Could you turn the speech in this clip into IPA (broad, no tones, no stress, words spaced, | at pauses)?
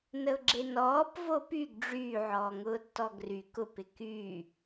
nəʊ̯ɡ͡ǁenɔːp vopyɡ ɖ͡ʐyː ʕɔːŋʊːtːɔɡry kʊp ɪky